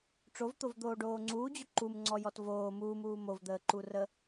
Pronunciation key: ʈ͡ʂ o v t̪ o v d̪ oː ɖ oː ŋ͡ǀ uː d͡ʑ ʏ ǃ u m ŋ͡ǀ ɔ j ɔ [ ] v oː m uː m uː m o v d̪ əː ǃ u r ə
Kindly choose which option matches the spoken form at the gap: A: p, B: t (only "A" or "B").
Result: B